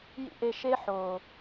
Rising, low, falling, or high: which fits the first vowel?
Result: high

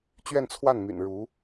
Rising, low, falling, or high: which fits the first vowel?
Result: falling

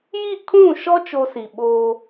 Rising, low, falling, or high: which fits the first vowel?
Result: falling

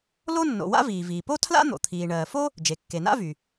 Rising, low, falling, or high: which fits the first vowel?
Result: high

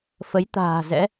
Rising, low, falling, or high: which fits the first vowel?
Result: rising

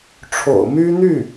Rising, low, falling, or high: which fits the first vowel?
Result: low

